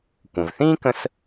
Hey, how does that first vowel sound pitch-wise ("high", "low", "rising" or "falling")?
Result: low